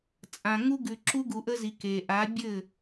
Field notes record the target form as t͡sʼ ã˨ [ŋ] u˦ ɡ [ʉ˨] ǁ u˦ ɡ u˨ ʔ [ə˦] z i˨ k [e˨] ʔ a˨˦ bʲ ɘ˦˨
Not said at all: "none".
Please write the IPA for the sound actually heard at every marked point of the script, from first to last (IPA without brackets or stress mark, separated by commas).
ŋ, ʉ˨, ə˦, e˨